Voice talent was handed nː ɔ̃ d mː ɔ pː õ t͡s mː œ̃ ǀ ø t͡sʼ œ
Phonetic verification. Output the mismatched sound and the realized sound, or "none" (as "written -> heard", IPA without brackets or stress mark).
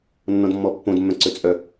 t͡s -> d